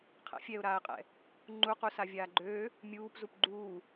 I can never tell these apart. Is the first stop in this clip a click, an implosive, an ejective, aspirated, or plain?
aspirated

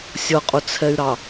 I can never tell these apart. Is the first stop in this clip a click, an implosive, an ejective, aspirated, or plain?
ejective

